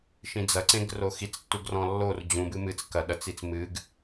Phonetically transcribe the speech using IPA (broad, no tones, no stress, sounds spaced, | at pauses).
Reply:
ʃ ĩ d͡z ɐ ǀ ẽ ɡ r o x i t͡s tː u ɡ r ɔ̃ lː o r d͡ʑ ũ b ɨ m ɨ t͡s k ɐ ɗ ɐ t͡s i t͡s m ɨ ɡ